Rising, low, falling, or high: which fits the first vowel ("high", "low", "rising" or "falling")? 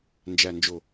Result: low